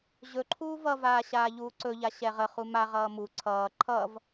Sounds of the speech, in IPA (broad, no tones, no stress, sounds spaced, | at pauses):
ʑ ɵ ǃʰ uː v ʌ v aː ɕ aː ʎ uː ǀ ɵ ʎ a ɕ ɛ ʁ ə χ u m a ʁ ʌː m u ǀʰ ʌː ǃʰ ʌ v